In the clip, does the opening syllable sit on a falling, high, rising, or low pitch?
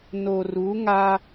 low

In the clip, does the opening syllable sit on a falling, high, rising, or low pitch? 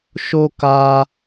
high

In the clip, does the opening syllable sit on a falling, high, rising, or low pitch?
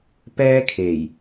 high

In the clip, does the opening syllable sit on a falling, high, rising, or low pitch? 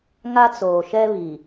high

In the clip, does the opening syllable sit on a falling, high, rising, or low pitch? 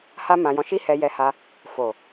high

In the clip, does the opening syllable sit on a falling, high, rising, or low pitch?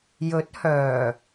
rising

